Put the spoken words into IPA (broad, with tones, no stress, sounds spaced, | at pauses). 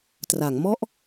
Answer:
t r a˩˦ ŋ m ɔ˥˩ ʔ